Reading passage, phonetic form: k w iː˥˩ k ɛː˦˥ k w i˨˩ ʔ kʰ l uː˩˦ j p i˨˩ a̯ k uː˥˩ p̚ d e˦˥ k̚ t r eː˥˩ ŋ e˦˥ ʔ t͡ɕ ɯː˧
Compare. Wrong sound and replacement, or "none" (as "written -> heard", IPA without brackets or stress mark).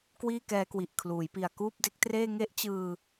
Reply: none